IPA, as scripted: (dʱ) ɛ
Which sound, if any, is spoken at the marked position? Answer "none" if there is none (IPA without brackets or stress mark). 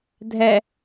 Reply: dʱ